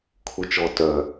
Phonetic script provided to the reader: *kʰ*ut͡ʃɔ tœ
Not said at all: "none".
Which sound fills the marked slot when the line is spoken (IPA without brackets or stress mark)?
kʰ